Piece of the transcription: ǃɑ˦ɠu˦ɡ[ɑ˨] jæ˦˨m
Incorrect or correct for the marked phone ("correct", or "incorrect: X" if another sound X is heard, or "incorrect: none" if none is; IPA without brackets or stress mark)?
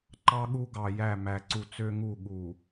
correct